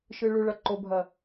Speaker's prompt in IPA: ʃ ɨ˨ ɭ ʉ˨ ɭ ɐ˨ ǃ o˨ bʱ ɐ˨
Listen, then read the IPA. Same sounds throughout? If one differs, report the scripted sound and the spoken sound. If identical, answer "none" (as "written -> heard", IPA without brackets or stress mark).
none